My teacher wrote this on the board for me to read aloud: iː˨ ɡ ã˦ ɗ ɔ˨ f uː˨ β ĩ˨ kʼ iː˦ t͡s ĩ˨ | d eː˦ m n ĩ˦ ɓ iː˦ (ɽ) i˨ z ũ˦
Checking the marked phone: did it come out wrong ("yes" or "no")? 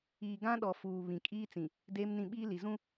yes